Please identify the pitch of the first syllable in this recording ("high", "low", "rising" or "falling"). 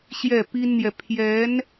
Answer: falling